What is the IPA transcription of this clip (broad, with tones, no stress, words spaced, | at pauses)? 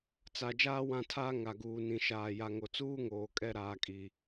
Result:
t͡sa˨ d͡ʒaː˦wã˦˨tʰaː˦ ŋa˨ɡuː˨ nĩ˨ʃaː˨ ja˨ŋo˨ t͡suː˦ŋoː˨kʼɛ˦˨ ɾaː˨kʼi˨